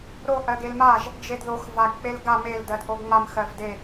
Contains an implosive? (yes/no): no